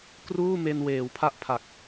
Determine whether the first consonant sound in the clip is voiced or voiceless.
voiceless